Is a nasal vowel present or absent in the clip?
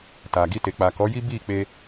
absent